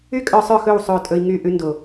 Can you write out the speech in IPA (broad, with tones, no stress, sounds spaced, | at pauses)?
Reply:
y˦ kʼ œ˧ sˤ œ˦˨ x ɵ˦˨ w sˤ ɵ˦˨ tʼ ɵ˧ i̯ ŋ y˦˨ ʔ ʉ˧ n d o˨